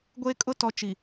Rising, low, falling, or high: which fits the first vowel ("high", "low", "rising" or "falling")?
high